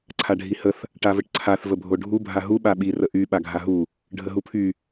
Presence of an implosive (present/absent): present